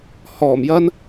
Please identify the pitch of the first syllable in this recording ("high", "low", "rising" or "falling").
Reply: low